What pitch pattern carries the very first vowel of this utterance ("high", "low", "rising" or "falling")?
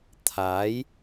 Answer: rising